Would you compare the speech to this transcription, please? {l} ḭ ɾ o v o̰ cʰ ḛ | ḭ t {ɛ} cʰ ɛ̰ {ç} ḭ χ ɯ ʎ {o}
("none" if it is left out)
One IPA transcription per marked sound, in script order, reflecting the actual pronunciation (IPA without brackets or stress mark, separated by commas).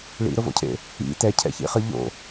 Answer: ɭ, ɛ, ç, o̰